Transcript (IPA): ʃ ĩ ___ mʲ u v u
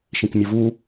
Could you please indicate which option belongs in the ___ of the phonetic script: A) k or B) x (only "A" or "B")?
A